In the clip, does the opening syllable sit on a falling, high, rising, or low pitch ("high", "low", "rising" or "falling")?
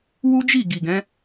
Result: high